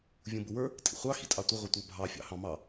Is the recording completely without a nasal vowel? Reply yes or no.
no